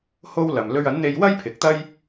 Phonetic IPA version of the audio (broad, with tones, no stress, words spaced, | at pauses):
ho˥wlɐ˨m lɵ˧ɥɐ˨˥nn̪e˧jwɐ˥j pʰɪ˨˥k̚t̪ɐ˥j